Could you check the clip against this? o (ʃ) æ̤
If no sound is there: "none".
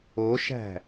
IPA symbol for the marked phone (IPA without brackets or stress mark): ʃ